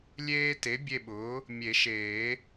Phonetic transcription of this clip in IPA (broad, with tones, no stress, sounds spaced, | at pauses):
lʲ eː˦ t e˩˥ bʲ e˦˨ ɓ ʊː˩˥ | mʲ e˨˩˦ ʃ eː˨˩˦